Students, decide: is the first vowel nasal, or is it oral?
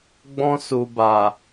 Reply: nasal